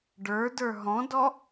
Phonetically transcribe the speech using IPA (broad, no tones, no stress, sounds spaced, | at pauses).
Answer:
ɖ ə˞ d ə˞ ɦ ɔ̃ d ɔ